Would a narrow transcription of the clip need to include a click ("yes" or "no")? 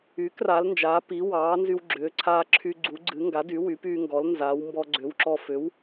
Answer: yes